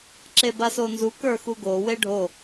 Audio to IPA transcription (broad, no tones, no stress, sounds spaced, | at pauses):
ǁ e b a s o n z u k ə˞ x u ɡ o w e ɖʱ o